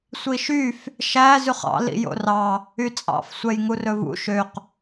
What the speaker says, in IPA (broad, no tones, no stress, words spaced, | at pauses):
sʷiʃyf | ʃæ zʉχɑ̰ lḭjo̰rɑ | yt͡sʼɑ̰f sʷɛjŋurɵvṵ ʃøq